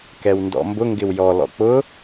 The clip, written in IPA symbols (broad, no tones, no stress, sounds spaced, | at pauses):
k ɛ w n d ɔ̰ m b ʊ ŋ ɡ ɪ w j ɔ l ɔ̰ k͡p ʊ